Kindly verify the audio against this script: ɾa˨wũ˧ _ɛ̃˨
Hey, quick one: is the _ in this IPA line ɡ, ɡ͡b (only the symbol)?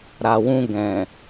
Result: ɡ